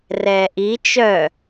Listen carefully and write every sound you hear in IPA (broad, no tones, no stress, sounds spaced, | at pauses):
r ɛː ʔ i t͡ʃ œ